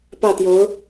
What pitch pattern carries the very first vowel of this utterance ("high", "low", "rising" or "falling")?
falling